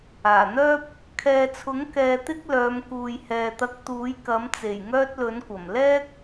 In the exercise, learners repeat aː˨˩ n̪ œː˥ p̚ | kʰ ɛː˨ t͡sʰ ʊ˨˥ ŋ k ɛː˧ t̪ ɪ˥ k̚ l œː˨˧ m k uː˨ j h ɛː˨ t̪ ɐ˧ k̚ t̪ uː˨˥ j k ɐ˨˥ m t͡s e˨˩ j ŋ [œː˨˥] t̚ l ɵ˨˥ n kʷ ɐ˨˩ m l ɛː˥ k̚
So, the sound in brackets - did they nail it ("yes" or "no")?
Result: no